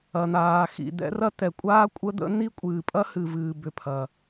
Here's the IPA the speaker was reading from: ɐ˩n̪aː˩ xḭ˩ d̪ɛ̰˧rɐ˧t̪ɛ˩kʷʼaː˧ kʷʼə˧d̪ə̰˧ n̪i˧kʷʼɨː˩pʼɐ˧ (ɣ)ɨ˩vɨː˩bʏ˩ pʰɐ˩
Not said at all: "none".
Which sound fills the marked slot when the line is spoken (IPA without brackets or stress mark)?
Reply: h